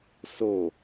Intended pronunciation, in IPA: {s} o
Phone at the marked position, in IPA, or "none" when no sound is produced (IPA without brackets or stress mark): s